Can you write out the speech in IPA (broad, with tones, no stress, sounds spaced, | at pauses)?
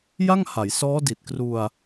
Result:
j a˥˩ ŋ h a˩˦ j s ɔː˦˥ d i˨˩ t̚ k r u˧ a̯